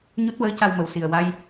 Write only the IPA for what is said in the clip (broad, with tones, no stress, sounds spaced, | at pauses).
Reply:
ɲ u˦˥ t̚ w əː˧˥ c a˧ w m ə˨˩ w s i˨˩ ə̯ w a˧ j